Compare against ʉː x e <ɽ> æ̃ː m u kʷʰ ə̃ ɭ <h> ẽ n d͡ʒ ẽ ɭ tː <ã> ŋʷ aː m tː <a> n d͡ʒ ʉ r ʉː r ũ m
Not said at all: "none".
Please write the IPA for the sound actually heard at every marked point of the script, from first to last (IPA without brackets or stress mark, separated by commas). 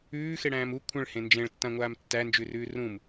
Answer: ɽ, h, ã, æ